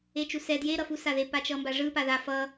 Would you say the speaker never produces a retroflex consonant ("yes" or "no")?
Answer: no